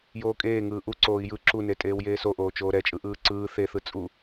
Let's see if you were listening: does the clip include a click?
yes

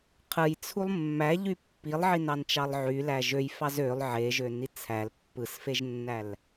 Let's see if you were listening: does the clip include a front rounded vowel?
yes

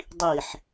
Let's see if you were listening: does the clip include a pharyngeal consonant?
yes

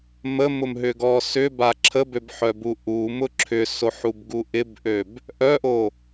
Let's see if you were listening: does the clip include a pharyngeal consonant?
yes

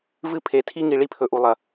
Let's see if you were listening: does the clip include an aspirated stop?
yes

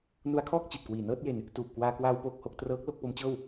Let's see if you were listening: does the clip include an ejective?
no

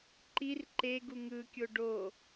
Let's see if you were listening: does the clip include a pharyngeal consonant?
no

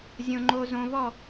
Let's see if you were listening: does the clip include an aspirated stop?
no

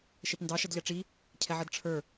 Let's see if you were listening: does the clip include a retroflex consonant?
yes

